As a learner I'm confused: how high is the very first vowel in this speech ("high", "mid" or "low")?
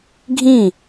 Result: high